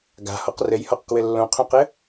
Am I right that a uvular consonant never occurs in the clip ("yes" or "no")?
no